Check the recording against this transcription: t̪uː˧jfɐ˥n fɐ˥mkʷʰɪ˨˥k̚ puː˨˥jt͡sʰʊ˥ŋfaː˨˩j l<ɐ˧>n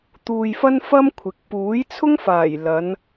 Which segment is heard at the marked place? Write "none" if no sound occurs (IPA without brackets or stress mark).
ɐ˨˧